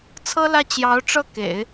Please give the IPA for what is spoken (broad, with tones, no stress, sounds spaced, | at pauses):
t͡sʰ ɤ˥ l ä˥˩ t͡ɕ j ɑ˧˥ ʊ̯ ʈ͡ʂ ɤ˥˩ k ḛ˨˩˦ ɪ̯